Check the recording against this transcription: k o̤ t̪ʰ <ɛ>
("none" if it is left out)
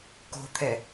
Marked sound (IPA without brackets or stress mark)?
ɛ